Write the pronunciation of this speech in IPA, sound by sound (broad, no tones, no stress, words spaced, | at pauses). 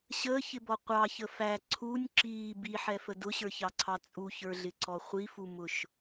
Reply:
ɕəːçɪbɔ qʷɑçə fæ ǀʰunʲ ǁiː biħɛfə dʊɕə˞çɑǀʰɑ t͡sʼuçə˞ɮɪǀɔ χʷifumʊʃ